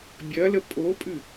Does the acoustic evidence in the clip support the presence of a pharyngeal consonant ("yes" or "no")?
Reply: no